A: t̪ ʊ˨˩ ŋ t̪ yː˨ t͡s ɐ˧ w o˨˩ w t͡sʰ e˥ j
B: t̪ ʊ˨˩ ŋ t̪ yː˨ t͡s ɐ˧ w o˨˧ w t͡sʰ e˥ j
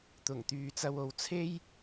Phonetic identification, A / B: B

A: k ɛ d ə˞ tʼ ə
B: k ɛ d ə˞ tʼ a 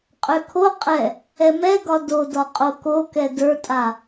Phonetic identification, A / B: B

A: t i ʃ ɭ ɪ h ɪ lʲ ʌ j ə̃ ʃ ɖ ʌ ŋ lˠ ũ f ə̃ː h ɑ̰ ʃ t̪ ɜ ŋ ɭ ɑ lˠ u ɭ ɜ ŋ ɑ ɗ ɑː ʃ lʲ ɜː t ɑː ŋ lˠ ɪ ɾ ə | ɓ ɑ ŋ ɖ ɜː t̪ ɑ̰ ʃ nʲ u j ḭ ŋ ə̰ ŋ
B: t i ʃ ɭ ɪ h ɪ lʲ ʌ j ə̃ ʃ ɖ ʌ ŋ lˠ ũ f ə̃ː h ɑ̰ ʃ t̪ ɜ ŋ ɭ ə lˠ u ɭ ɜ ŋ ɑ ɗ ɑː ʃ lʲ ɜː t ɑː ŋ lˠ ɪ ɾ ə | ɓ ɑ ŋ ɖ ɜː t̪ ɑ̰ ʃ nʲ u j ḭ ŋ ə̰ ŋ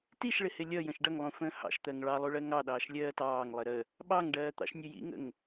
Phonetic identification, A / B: A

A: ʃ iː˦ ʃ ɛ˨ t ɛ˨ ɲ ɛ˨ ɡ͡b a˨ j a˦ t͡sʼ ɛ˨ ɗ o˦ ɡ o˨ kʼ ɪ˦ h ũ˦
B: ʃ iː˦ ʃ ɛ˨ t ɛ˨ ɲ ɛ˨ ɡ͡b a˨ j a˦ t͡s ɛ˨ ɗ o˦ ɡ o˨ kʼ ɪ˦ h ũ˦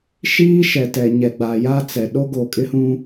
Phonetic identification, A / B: B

